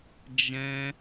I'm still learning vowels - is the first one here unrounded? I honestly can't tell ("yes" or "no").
yes